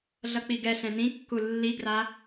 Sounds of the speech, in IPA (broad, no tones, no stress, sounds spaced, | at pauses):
ɮ ʌ k͡p i ɡ ɛ ɬ ɛ̃ n ĩ kː u lː i ɡ r a